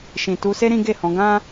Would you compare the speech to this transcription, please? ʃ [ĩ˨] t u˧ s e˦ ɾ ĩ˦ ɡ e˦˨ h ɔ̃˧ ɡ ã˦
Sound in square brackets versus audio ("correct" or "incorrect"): correct